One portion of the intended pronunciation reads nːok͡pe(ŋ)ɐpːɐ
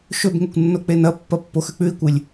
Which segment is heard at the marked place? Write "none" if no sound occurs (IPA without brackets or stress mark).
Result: n